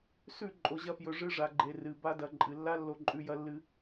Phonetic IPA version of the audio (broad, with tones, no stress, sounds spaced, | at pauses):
s ʉ˦˨ ǃʼ o˨ ʑ ɐ˧ f j ɵ˨ ʐ ɨ˧ ʐ a˨ ɡ͡ǃ e˨ r ɨ˨ b a˧ d ɐ˨ ǃʼ ɨ˨ lː a˦ lː o˧ ǃʼ ʉ˧ j ɐ˦ lː ɨ˦